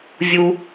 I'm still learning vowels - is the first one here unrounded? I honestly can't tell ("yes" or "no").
no